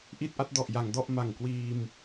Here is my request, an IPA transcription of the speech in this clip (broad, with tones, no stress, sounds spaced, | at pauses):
ʔ i˥˩ t̚ ʔ a˥˩ t̚ d ɔ˨˩ ʔ j a˩˦ ŋ d ɔ˥˩ ʔ m a˨˩ ŋ k w iː˧ m